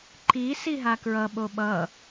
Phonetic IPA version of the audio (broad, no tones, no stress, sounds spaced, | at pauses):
ǃ i s i ɦ a k ɹ ʌ ɓ o ɓ ʌ